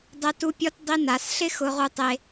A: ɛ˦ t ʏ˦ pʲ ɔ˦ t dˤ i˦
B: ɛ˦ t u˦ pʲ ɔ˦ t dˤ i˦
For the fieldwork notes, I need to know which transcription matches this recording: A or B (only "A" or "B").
B